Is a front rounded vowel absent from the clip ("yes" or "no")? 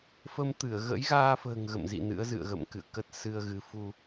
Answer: yes